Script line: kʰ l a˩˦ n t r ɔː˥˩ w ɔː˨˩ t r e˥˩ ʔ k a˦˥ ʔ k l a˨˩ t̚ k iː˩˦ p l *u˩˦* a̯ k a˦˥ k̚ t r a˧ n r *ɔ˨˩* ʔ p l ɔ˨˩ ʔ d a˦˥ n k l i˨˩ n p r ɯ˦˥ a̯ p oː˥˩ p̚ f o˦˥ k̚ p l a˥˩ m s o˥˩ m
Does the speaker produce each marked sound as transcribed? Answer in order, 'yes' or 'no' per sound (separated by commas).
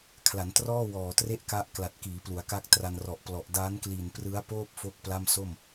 yes, yes